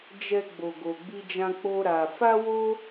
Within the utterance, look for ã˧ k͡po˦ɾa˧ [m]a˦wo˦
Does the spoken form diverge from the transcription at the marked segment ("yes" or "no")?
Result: yes